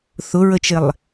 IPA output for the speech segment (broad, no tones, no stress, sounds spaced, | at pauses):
θ ʊ ɹ ə t͡ʃ ɪ lˠ